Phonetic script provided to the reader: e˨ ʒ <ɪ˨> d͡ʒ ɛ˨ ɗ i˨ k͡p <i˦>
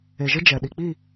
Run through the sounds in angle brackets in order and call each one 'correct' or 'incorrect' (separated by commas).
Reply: incorrect, incorrect